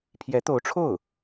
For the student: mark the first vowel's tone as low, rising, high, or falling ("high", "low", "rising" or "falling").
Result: rising